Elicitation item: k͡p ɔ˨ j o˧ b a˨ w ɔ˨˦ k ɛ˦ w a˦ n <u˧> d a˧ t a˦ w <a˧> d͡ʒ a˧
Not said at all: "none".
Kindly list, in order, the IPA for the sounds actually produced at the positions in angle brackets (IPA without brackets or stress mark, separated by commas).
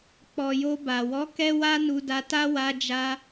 u˧, a˧